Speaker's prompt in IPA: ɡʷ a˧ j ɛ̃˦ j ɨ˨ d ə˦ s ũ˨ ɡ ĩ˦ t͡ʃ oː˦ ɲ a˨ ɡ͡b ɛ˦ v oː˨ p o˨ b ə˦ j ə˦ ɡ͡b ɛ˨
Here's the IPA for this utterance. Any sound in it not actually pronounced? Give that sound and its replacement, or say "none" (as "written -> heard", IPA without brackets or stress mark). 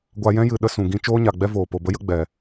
d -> ɗ